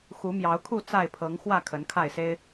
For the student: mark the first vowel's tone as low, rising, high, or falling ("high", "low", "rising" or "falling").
rising